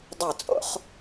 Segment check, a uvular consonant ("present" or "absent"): present